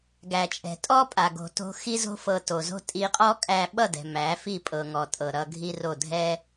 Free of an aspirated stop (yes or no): yes